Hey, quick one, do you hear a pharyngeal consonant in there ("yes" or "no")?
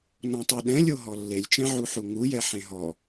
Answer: yes